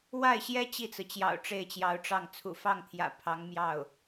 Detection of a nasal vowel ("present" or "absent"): absent